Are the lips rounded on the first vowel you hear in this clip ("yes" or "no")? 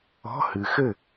yes